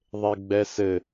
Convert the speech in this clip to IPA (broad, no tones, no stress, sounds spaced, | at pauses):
ðˤ e ɡ͡b ɛ s ɘ